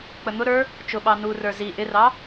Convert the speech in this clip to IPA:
k͡pən̪ʊɾə˞ | t͡ʃʊɓɑ nurə˞ zi ʔɪrɑ

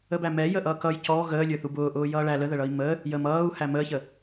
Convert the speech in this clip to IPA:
əbæmɛ jəʔʌːkʌj cɔ ɣəːlʲə˞ θubʊːʔʊː jʌːɭæ ləðəɭʌi̯ mə | jəm ʌːu̯ hæməːçə

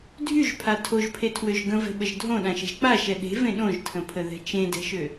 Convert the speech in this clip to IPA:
dʱyʒpʰa tʰoʒpʰetʰwøʒ ɡə̃vɛ̤ɓəʒ dʱõɗãʃɛ̤ʒ k͡paʃɛ ɗe̤vẽ ɗõʒtʰə̃pʰəðɛ̤ t͡ʃẽdɛ̤ʃø

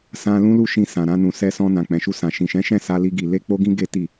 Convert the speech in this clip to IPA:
sã˧ lũ˦lu˦ʃĩ˧ sã˨ɾã˧nũ˨ sɛ˧sɔ̃˧ nã˨k͡pɛ̃˨ʃu˧sã˨ ʃĩ˨ʃɛ̃˨˦ʃɛ̃˦˨ sa˧li˧ɡi˨ le˧k͡po˧ɡĩ˧ ɡe˦ti˦˨

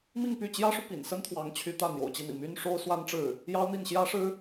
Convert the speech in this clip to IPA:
mi˥˧ŋpy˥˩ t͡ɕjä˥ʂu˨ pḭ˨˩nsə˥n t̪ʰwɑ˧˥ŋt͡ɕʰy˧˥ t̪ä˥˩n̪jo̰˨˩ʊ̯t͡ɕi˥˩n̪ḭ˨˩ my˥nʂo˥ʊ̯ swa˥nʈ͡ʂɻ̩˥˩ | jɑ˥ʊ̯n̪i˥˩n ɕjä˥ʂɻ̩˥

